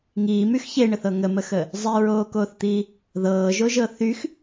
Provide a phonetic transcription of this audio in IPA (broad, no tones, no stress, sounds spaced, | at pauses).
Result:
ŋ iː m y x ç e ɳ ə θ ɤ ŋ ə m ə x əː | zˤ i ɹ oː k oː θ t̪ iː | ð ɤː ʒ o ʒ ɤ θ y x